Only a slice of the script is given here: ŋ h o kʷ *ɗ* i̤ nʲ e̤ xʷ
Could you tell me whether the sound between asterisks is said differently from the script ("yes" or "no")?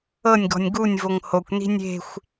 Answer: yes